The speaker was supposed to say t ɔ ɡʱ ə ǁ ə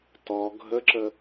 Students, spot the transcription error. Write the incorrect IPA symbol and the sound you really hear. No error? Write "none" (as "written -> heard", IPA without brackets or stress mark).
none